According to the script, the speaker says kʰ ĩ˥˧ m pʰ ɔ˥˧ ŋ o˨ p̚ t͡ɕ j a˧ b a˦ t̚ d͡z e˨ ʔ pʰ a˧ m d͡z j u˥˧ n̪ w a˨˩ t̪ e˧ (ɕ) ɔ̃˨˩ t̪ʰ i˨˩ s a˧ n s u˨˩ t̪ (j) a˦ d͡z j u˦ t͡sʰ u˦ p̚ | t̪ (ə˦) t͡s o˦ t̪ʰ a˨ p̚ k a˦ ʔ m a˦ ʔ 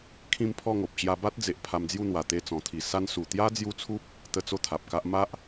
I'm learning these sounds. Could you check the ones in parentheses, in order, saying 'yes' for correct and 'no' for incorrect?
no, yes, yes

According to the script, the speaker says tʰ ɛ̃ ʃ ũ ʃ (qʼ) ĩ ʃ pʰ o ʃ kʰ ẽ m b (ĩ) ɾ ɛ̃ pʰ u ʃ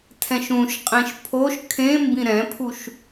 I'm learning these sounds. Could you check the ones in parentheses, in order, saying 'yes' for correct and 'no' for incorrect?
yes, yes

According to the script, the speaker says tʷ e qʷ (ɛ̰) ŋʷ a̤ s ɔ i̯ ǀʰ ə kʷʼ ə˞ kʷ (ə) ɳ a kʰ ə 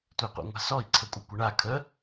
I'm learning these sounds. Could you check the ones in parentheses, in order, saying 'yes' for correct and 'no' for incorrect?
yes, yes

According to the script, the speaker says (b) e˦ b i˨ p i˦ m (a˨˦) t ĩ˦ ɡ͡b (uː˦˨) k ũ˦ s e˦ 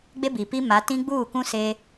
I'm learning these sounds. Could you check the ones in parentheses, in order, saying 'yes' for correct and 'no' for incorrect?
no, yes, yes

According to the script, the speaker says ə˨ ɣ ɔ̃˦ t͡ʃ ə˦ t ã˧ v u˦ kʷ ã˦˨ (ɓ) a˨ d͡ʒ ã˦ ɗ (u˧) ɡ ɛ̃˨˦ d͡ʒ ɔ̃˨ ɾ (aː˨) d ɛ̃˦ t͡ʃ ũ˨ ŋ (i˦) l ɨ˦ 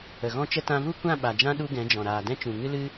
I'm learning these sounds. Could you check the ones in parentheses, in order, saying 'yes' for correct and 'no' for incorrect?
yes, no, yes, no

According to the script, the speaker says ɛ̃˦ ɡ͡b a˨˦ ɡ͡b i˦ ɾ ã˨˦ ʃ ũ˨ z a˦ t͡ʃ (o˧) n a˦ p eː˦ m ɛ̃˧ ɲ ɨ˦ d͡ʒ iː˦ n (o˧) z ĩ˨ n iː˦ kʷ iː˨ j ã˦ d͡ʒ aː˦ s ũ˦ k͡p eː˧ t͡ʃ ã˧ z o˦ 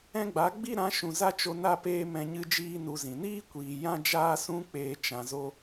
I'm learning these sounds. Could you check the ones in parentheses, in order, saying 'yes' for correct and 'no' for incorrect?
yes, no

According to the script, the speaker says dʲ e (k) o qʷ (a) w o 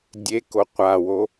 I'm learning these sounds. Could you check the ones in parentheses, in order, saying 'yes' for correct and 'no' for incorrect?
yes, yes

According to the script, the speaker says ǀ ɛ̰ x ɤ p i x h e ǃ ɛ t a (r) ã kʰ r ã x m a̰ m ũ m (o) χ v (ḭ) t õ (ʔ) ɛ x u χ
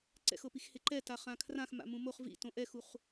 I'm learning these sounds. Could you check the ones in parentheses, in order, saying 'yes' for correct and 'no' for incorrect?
no, yes, yes, yes

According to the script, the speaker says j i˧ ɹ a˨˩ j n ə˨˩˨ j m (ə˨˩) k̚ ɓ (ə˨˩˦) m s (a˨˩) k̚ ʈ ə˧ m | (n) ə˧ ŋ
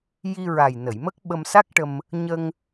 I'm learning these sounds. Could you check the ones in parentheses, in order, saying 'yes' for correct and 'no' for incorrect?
no, no, no, no

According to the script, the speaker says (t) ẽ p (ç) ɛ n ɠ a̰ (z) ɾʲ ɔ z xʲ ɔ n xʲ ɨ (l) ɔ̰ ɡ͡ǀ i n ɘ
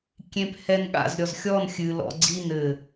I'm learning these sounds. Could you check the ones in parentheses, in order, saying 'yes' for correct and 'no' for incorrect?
no, no, yes, yes

